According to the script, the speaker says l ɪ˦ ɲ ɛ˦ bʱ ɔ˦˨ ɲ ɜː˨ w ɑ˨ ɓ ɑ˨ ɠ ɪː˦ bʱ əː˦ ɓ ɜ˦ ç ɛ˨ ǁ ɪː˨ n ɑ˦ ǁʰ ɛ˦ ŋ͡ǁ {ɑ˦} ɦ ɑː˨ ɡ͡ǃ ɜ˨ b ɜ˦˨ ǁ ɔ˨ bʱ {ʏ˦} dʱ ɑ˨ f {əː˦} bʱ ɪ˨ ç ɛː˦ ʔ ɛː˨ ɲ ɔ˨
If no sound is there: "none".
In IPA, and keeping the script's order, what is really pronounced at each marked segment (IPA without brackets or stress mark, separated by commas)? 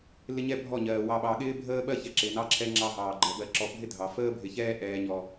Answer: ɑ˦, ɪ˦, əː˦